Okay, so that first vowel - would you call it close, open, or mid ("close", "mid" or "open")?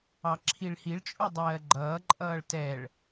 open